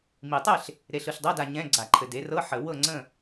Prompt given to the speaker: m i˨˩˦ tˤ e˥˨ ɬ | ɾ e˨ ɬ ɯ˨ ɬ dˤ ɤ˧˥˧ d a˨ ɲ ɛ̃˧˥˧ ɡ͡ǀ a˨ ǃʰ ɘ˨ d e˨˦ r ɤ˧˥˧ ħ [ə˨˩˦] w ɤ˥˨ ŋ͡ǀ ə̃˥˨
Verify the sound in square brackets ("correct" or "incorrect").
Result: correct